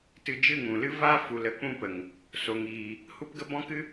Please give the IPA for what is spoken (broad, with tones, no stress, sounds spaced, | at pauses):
t ɨ˧ d͡ʒ ɨ˦˨ ŋ ũ˨ l ɨ˦ v a˦ f u˨ l ə˦ k͡p ũ˦ p ə˨ ŋ | s o˨ ŋ iː˨ | h u˦ p ɡ ə˦ b ɔ̃˦ k ɨ˦